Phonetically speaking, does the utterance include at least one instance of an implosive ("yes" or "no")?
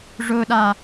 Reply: yes